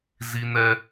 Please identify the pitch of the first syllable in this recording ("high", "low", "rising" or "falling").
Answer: high